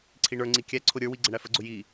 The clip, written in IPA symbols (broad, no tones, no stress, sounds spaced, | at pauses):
ǀʰ i ɳ ə˞ ŋ͡ǀ i kʲ æ ǀʰ ʊ ɾʲ ə˞ w i ɡ͡ǀ ə ɳ æ f ə ɡ͡ǀ ʊ j i